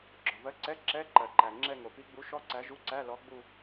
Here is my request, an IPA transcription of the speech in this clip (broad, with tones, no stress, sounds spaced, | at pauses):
ɡ͡ǁ ɔ˩ v ɜ˨˥ ǀ ɛ˧˥˧ ǁ ɛ˧˥˧ ǃ ɜ˩ ǃ æ˩ ŋ͡ǁ ɛ˦˨ ŋ o˩ p i˨˥ ɡ͡b u˨˥ ʃ ɔ˦˥ ǀ æ˨˥ ʒ u˧˥˧ ǀ æ˧˥˧ l ɔ˨˥ ɡ͡b u˦˨